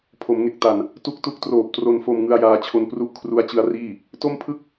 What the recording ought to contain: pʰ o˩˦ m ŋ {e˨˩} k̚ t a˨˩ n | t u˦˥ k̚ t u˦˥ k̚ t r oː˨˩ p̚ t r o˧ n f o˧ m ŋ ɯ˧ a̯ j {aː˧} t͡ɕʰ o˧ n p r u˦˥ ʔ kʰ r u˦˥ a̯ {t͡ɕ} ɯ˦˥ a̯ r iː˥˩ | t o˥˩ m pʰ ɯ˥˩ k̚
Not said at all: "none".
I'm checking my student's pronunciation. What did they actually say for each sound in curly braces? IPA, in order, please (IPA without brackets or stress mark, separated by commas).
e˨˩, aː˧, t͡ɕ